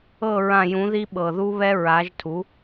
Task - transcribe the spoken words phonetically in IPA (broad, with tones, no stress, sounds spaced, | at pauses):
ɤ˦˨ ɹ ã˦˨ j ũ˨˥ ð i˦˥ ɓ ɤ˨˩ ð u˦˥ β ɛ˦˥ ɹ a˨˥ ʒ tʰ u˨˥